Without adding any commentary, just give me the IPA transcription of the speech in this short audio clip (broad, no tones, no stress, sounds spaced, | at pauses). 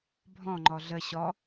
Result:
bʱ ɔ̃ ŋ͡ǃ ɔ ɮ ə ɕ ɔ